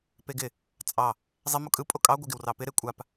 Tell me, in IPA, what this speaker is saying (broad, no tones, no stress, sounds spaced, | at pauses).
p e ɡ ɪ | t͡sʼ ɑ | zˤ e m o kʼ ɯ pʼ o kʼ ɑ ɡʷ ɪ ɡ ɪ w r ɑ p ɪ ɾ e kʷʼ a p